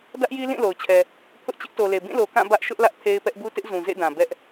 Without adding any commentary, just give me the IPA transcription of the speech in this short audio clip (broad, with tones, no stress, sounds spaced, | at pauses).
d ä˦ ʔ j i˦ l ĩ˦˨ l o˨ ʊ̯ t͡ɕʰ ɛ˨ | pʰ ʊ˦ ʔ t͡ɕ ɪ˦ ʔ t o˨ l e˨ b ĩ˦˨ l o˨ k ã˦˨ b ä˦ ʔ ʃ ʊ˦ ʔ l ä˦ ʔ pʰ e˦ ɪ̯ p ɛ˦ ʔ b u˦ t ɪ˦ ʔ z ũ˨ z ḛ˦˨ d ã˨ b ɛ˦ ʔ